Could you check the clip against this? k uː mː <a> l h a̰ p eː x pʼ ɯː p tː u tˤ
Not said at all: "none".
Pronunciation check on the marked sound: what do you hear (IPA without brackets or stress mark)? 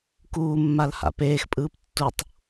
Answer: a